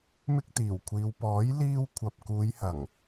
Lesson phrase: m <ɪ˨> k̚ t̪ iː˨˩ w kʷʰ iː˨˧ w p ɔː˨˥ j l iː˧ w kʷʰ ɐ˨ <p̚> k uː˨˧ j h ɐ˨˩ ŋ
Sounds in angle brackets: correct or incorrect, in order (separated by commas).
incorrect, correct